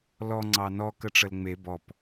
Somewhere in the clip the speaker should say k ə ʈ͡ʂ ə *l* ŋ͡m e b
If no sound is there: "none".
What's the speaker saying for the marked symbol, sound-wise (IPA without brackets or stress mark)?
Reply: l